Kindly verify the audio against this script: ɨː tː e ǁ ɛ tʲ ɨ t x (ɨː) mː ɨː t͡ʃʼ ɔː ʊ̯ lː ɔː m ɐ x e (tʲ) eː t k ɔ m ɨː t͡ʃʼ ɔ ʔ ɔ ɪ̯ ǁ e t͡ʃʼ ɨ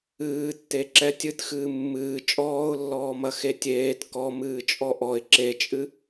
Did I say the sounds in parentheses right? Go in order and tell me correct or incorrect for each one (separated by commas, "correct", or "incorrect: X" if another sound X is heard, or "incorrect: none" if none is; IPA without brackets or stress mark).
correct, correct